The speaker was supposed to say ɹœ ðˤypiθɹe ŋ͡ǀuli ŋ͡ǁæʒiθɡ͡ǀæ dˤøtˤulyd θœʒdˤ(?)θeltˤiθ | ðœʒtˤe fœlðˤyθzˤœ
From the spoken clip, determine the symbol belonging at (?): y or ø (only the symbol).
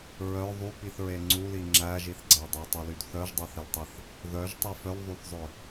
ø